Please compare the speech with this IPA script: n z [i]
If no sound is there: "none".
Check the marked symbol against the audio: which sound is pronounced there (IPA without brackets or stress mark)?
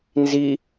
i